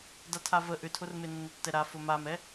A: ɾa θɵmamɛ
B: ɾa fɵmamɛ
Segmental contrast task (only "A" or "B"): B